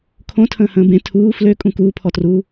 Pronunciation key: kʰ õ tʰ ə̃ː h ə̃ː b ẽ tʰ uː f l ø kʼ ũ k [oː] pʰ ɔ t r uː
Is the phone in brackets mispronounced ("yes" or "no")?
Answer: yes